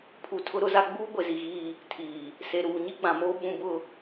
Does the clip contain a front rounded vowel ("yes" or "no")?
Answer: no